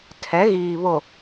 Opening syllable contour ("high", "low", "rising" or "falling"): rising